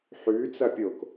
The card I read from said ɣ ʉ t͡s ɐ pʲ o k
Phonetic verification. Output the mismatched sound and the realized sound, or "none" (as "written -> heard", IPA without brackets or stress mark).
ɣ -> ħ